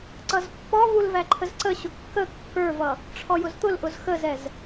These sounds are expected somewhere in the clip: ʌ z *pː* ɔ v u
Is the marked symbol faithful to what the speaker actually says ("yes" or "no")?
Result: yes